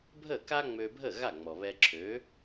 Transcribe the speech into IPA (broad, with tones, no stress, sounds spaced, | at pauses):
bʱ ə˥˩ k a˥ ŋ͡m ø˧ bʱ ə˥˩ ɣ a˥˩ ŋ͡m ɔ˩ β ɛ˧ ǁʰ ø˩˥